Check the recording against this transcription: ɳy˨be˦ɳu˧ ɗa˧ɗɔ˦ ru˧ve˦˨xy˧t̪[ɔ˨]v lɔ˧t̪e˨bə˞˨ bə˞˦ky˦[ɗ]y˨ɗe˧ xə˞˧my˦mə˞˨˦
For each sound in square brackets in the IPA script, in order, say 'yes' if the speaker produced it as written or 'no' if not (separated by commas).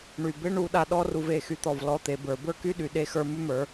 yes, yes